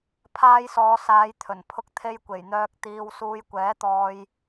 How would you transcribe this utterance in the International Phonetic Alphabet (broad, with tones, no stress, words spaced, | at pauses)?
pʰaː˧jsɔː˨˧saː˨˧j t̪ʰɵ˨˩npʰʊ˧k̚ t̪ʰe˧jkʷe˨˩jn̪œː˧k̚ t̪iː˧w suː˨˧jkʷɛː˨˥t̪ɔː˧j